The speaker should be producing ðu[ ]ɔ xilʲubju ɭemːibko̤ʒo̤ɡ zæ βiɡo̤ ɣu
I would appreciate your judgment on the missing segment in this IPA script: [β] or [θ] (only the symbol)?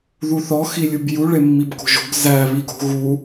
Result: θ